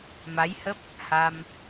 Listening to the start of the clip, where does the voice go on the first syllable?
rising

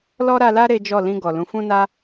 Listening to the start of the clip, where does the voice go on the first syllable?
high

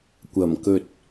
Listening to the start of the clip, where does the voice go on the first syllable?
low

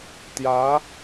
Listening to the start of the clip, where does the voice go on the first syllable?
rising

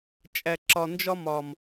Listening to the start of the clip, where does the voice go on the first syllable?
low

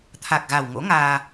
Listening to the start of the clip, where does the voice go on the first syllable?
low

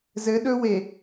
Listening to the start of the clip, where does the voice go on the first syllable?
rising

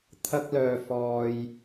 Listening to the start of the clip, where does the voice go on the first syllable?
high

